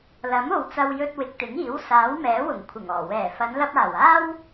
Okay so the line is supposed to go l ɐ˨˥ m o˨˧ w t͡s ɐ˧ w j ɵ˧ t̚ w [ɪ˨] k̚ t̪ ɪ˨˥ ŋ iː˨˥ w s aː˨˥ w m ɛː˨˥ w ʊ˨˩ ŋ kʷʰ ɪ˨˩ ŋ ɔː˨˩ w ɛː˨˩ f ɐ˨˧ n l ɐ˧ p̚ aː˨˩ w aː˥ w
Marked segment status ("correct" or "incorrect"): correct